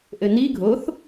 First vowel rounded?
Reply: no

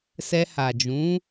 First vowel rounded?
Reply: no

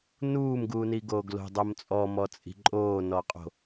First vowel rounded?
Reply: yes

